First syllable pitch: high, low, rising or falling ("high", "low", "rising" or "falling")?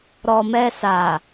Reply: low